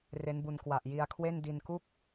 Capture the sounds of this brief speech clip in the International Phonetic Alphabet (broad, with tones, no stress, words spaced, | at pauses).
re˦˥nbu˧n kwa˨˩ʔ ji˧a̯kʰwe˥˩n di˧nku˥˩k̚